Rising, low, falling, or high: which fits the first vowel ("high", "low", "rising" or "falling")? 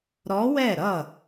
rising